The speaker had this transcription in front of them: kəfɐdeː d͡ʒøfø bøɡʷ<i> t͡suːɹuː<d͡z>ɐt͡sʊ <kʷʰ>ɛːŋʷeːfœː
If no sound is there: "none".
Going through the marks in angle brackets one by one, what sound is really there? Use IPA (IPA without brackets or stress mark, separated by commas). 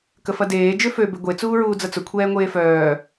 e, d͡z, kʷʰ